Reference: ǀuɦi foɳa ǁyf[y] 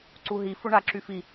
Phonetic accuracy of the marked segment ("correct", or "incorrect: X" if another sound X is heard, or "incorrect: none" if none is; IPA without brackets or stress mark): incorrect: i